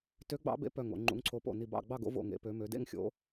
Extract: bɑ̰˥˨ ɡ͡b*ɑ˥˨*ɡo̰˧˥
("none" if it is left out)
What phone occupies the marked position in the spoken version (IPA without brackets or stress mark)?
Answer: ɑ˥˨